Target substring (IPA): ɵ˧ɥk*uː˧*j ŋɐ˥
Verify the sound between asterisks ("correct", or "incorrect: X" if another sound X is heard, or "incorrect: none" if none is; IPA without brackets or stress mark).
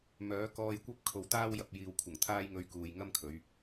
incorrect: uː˨